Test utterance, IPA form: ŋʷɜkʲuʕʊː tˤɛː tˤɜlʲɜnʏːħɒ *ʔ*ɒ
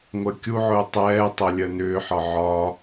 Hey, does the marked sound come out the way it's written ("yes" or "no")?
no